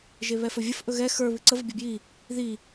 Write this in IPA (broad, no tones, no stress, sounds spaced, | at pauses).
ʒ e β ɛ f ɵ vʲ ə f ʔ ɵ ɣ ɛ x ə˞ β ɨ ǀ ə v ə bʲ ə˞ b j i | ð i